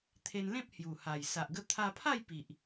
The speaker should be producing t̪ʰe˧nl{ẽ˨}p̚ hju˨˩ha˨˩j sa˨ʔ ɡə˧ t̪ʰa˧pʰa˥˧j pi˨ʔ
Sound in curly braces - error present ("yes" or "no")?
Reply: yes